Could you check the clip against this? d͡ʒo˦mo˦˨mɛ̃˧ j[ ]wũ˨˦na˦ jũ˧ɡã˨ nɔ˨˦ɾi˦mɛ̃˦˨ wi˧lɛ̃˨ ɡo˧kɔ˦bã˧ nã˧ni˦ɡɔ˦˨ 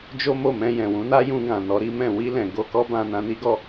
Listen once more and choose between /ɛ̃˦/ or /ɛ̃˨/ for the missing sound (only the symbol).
ɛ̃˨